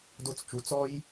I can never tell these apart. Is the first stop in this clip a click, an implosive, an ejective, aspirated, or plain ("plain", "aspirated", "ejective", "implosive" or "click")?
plain